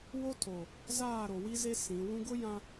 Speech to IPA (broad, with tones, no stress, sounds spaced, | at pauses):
w o˦ tʰ o˨ | z aː˦˨ ɾ o˨ w i˦ z e˦ s ĩ˨˦ w ũ˦ ɡ ʊ˦ j ã˦